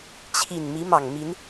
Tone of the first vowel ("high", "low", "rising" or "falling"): low